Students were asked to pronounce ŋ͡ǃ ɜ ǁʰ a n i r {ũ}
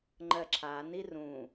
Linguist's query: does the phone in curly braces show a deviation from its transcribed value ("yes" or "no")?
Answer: no